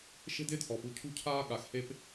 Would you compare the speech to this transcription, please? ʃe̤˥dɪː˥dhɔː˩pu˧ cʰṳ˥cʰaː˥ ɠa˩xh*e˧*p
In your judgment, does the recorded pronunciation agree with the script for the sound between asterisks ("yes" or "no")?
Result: yes